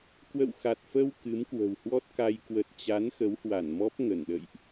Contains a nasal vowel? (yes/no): no